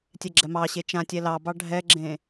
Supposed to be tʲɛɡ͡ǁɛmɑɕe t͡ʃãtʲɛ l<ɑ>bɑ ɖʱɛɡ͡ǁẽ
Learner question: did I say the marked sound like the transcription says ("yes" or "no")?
yes